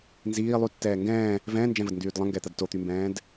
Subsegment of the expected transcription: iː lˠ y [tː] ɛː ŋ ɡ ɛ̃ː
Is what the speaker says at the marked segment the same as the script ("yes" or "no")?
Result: yes